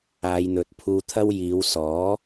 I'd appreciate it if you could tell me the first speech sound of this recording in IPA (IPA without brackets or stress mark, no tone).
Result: aː